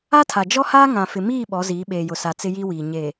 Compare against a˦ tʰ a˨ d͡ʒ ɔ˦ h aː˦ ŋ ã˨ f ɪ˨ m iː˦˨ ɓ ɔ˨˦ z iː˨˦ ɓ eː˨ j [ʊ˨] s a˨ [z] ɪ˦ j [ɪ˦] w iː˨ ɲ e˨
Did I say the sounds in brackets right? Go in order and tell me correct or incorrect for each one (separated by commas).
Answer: correct, incorrect, incorrect